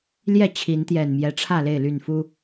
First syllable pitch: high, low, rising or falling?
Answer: falling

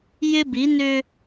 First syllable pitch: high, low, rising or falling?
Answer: high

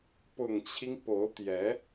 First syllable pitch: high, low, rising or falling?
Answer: low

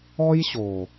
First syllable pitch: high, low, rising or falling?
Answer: high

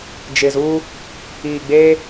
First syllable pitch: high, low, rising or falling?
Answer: low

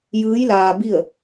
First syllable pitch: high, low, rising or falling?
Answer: rising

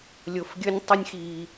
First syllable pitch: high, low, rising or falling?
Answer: low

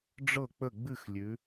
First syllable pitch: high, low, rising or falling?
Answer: falling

